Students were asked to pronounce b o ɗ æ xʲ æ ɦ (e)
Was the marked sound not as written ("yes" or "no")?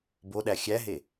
no